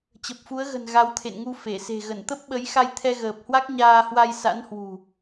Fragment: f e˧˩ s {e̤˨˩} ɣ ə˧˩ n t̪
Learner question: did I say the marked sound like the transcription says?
yes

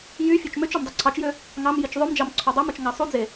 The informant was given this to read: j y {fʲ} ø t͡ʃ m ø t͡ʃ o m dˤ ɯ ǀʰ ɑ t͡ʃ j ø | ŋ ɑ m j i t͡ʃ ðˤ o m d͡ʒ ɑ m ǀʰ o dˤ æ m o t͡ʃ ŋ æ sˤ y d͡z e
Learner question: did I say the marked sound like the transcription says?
yes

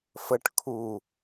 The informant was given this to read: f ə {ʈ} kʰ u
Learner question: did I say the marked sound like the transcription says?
yes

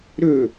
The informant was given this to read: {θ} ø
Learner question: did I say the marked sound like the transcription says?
no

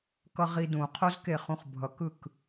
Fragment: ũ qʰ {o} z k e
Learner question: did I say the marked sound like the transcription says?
yes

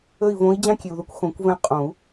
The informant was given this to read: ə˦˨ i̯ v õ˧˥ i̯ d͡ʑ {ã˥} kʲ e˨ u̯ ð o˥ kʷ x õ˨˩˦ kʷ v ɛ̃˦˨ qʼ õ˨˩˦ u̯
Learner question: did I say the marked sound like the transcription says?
yes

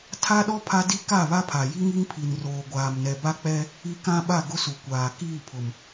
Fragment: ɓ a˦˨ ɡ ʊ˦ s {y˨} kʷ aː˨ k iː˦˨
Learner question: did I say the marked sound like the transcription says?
no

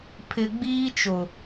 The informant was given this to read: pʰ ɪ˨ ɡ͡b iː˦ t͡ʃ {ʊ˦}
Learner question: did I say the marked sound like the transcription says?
no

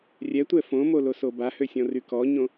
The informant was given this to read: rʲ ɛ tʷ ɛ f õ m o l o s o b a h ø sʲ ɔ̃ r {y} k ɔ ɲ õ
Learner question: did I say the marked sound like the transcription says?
yes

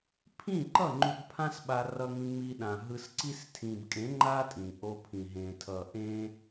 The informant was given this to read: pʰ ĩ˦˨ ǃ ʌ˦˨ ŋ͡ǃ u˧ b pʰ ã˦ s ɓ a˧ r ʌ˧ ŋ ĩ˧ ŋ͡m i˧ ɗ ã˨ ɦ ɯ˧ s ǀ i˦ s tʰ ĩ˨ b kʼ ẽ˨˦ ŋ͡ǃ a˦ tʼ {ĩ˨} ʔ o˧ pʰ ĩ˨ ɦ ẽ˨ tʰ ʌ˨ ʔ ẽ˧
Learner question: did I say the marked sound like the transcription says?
yes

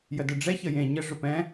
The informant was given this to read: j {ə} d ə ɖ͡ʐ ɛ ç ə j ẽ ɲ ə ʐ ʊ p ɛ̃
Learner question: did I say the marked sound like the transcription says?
yes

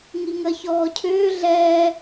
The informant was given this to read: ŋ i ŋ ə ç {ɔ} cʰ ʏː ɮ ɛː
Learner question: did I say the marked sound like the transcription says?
no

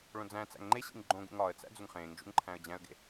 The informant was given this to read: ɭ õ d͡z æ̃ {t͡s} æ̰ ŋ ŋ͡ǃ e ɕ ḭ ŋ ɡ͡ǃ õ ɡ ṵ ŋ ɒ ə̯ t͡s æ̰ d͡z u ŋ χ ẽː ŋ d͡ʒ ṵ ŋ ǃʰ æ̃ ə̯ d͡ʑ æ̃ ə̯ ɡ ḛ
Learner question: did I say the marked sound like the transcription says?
yes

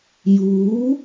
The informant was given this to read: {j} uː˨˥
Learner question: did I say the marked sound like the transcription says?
yes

